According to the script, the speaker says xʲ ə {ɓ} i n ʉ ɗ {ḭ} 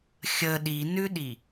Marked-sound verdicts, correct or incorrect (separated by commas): incorrect, incorrect